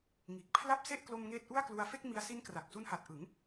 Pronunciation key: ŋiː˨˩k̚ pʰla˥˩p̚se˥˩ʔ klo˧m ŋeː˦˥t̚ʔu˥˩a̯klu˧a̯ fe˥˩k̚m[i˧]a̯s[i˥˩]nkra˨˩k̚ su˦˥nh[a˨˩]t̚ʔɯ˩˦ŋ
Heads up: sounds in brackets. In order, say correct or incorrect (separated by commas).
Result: correct, incorrect, correct